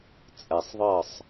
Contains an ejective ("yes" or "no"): yes